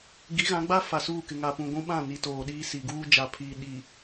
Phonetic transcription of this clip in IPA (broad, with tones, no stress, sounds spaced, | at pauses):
ɡ i˨˦ ɣ ã˨˦ ɡ͡b a˦ f a˨ s uː˦˨ k ɪ˨ ŋ a˨ p ũ˨ ɡʷ ũ˦ ɓ ã˦˨ n i˨ t oː˨ ɗ iː˦ s i˨ ɡ uː˦ d͡ʒ a˨ pʰ iː˨ ɗ i˨